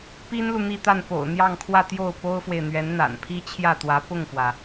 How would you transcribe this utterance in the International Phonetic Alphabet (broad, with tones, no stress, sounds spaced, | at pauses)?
p i˥ n l u˨ n̪ i˥˧ t̪ a˥˩ n p o̰˨˩ ʊ̯ n̪ j ɑ˥˧ ŋ kʰ w ä˥˧ t̪ j o˥˩ ʊ̯ p o˥ ʊ̯ f w e˨ ɪ̯ n̪ ɥ ɛ˧˥ n n̪ a̰˨˩ n pʰ i˥ t͡ɕʰ j ä˥˩ t̪ w ä˧˥ p ʊ˥˩ ŋ f w ä˩